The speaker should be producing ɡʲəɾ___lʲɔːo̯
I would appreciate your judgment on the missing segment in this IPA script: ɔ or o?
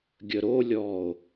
o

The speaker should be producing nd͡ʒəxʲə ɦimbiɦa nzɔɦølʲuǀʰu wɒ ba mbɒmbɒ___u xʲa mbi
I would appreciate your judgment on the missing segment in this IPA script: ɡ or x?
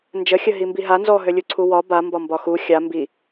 x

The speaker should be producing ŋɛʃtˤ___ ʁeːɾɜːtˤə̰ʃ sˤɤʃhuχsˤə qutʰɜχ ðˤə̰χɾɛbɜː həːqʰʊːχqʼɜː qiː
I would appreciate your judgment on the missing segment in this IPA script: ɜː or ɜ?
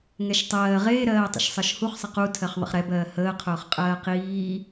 ɜː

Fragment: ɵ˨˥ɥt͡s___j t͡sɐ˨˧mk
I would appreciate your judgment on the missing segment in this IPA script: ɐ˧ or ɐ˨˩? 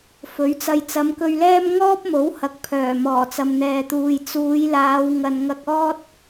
ɐ˧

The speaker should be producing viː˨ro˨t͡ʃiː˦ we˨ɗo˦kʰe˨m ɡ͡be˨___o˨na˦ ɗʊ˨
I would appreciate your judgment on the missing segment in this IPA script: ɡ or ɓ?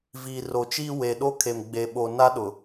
ɓ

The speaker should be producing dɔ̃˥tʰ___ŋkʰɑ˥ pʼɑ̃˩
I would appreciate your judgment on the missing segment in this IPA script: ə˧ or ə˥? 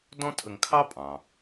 ə˧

